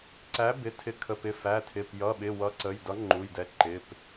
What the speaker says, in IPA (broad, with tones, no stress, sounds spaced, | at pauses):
ǀ æ˨˥ b ɪ˩˧˩ tʰ ɪ˨˥ kʰ ə˩˧˩ p ɪ˩˧˩ f æ˩˧˩ tʰ ɪ˩˧˩ p j ʌ˩˧˩ ɓ ɪ˩˧˩ w ʌ˨˥ ǀ ə˩˧˩ j d ʌ˨˥ ŋ͡ǃ u˩˧˩ j d ɛ˨˥ ǃ ɪ˩˧˩ p